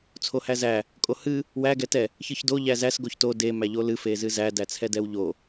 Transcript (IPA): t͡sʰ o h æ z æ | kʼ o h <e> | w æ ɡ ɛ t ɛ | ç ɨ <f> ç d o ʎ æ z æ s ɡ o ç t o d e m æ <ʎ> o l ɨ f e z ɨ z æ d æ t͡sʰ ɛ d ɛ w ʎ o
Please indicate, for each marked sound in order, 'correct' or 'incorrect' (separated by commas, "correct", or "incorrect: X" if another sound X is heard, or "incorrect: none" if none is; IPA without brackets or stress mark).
incorrect: ɨ, incorrect: none, correct